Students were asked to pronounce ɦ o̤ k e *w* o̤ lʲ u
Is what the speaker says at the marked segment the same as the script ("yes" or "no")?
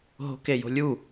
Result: no